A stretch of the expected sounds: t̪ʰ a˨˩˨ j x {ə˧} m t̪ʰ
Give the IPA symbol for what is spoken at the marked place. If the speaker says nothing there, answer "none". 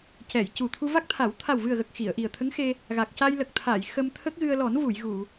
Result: ə˧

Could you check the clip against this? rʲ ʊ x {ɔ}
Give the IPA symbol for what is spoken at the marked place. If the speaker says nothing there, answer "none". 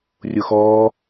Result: ɔ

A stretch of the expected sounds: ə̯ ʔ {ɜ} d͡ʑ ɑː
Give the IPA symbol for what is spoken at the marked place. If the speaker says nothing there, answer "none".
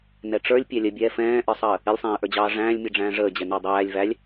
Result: ə˞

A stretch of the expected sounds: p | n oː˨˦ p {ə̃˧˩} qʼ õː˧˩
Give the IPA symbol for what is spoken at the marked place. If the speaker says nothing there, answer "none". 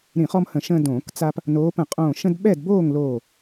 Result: ə̃˧˩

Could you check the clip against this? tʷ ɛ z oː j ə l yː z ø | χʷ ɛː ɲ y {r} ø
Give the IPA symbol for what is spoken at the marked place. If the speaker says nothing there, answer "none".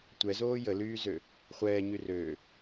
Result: r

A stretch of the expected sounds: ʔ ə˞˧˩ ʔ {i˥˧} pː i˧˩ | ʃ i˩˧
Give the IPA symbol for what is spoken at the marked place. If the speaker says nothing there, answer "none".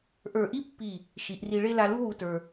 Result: i˥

